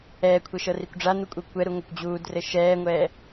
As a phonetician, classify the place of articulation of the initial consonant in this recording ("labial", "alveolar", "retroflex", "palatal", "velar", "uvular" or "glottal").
velar